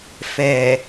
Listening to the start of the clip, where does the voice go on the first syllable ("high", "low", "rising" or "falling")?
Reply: low